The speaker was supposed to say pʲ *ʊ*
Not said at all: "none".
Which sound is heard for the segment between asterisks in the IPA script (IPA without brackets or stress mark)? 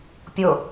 ʊ